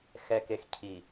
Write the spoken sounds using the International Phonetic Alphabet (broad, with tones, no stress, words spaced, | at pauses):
xɛ˨ke˨x cʰi˨